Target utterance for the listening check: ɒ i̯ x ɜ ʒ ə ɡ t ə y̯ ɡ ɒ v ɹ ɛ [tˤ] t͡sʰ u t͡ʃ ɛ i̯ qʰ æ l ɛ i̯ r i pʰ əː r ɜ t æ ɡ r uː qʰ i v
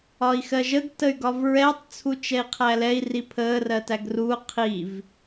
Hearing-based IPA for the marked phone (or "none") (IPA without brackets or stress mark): tˤ